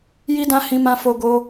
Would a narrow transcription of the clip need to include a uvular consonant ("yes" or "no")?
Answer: no